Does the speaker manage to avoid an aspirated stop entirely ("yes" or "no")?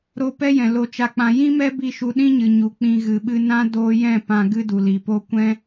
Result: yes